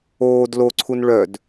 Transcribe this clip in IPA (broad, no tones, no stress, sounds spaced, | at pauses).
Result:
oː d l o ǀʰ u n ɭ œ d